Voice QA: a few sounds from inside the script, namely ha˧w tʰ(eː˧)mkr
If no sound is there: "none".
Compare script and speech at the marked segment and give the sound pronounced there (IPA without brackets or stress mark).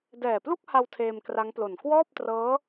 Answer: eː˧